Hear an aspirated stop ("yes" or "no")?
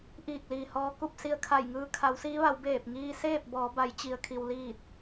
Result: yes